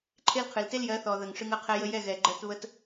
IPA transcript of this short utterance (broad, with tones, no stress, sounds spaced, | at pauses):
ǃʰ e˦ l qʰ ɨ˨ l t e˦ l j ɜ˨˦ θ ɔ˨ ð ə˨ ŋ ʂ ɨ˧ ŋ ə˦˨ qʰ ɛ˧ j ə˧ j ɛ˦˨ ɣ ɛ˨ ɡ͡ǃ ɜ˧ t β ə˧ t